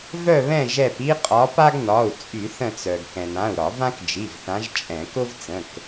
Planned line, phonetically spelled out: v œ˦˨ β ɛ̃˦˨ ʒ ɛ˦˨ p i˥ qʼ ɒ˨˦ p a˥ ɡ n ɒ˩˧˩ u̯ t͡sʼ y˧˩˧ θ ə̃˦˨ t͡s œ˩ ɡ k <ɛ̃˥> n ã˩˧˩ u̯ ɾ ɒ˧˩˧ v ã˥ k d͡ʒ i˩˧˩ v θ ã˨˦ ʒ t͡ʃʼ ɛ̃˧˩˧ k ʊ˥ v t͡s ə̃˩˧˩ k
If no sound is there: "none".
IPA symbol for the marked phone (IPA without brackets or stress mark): ɛ̃˩